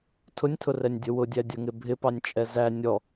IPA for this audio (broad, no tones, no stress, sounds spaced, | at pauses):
tʰ ʊ nʲ tʰ ʊ r ɛ nʲ dʲ ə w ʊ dʲ æ dʲ ə ŋ ɪ bʱ ɪ p ɑ nʲ t͡ʃʼ ɛ z æ nʲ ɔ